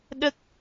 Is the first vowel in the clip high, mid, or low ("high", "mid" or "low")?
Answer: mid